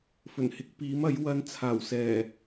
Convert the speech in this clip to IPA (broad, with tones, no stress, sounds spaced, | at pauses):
f ɵ˨˩ n h ɪ˨˥ k̚ p iː˨˥ m ɐ˨˥ j w ɐ˧ n t͡sʰ aː˨˩ w s ɛː˨˩